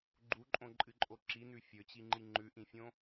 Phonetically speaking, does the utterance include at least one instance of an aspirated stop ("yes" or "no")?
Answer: no